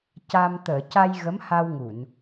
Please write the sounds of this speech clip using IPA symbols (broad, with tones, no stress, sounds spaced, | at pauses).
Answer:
c a˧ m t̪ əː˨˩˨ c a˧ j ɣ ə˧˥ m h a˧ w ŋ u˨˩˨ n